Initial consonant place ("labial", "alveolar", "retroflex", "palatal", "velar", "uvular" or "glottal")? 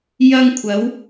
palatal